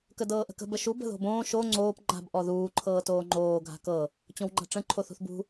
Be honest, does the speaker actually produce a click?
yes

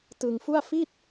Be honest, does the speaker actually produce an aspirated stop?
no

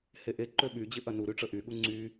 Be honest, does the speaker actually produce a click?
yes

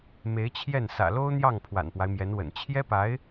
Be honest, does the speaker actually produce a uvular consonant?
no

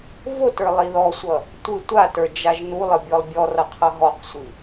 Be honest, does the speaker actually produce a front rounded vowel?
no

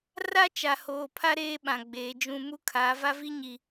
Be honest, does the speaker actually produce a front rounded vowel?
no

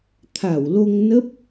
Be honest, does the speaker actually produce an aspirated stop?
yes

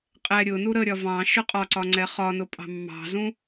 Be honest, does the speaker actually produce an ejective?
yes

